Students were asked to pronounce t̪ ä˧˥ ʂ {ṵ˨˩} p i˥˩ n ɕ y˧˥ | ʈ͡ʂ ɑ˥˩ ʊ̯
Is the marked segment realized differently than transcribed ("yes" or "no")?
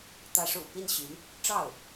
no